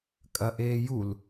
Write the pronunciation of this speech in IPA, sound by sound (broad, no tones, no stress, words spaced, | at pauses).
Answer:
kʼɐʔeː jul